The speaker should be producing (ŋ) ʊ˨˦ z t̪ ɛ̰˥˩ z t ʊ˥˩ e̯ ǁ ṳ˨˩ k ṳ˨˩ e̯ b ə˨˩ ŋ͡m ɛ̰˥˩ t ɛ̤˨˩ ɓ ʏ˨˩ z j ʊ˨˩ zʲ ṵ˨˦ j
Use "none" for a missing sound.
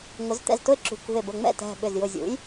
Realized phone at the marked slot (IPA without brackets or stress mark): ŋ